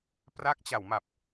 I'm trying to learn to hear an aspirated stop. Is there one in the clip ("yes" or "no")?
no